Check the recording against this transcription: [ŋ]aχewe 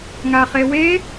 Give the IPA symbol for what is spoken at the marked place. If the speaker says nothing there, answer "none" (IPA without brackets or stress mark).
ŋ